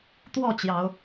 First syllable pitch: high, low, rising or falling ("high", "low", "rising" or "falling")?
falling